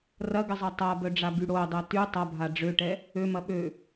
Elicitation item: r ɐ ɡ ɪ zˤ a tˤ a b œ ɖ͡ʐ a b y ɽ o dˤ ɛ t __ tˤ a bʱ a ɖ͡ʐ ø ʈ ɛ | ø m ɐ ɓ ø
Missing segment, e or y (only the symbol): y